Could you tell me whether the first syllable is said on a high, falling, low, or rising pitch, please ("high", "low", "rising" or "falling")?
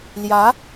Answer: rising